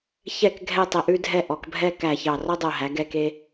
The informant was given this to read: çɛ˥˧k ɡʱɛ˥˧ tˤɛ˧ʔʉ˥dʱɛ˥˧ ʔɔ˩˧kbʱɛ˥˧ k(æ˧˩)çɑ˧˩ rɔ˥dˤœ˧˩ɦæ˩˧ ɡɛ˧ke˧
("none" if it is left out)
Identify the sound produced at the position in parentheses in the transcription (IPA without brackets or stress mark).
æ˧˩